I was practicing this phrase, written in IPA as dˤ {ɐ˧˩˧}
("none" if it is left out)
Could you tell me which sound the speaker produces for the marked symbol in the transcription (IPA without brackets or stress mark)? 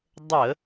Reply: ə˧˩˧